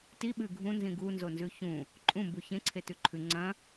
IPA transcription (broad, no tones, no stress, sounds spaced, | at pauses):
t i ɓ ɨ ɡʱ ũ n z ĩ ɡ u n z o n z ʉ ç ũ | ǃʼ ũ m b u ç ẽ ǀʰ e t ʉ ǃʰ ʉ ŋ͡ǀ ɐ̃